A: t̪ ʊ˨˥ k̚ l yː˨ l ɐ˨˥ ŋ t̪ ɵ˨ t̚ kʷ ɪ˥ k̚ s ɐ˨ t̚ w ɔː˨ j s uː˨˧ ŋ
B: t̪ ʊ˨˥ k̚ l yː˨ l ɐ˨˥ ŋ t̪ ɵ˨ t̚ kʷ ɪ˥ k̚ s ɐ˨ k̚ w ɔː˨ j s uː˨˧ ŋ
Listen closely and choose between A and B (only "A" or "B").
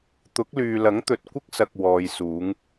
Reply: B